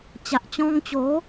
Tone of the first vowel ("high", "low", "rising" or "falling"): low